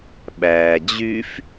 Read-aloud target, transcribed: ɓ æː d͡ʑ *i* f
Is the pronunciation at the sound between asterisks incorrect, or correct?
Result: incorrect